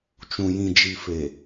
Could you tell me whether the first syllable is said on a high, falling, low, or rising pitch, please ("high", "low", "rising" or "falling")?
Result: low